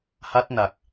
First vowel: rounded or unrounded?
unrounded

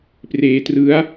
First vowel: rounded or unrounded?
unrounded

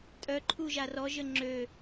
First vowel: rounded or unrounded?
rounded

